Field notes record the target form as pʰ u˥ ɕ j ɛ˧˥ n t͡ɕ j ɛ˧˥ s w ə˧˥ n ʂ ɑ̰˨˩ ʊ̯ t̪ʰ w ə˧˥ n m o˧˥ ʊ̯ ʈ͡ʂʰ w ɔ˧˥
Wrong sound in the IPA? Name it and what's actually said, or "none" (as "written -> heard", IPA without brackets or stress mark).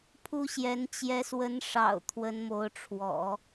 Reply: ɔ˧˥ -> ɔ̰˨˩˦